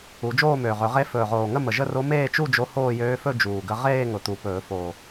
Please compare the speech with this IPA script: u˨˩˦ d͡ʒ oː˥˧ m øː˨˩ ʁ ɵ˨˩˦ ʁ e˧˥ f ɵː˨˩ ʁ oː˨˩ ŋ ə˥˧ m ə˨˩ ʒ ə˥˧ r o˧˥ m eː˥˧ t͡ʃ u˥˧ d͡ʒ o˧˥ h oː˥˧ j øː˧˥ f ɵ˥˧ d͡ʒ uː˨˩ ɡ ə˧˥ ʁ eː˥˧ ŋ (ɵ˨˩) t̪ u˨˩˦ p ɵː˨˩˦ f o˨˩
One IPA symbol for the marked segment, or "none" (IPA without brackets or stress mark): ʊ˨˩